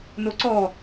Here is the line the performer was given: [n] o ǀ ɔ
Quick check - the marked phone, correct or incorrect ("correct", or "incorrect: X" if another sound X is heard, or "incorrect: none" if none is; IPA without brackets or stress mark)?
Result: correct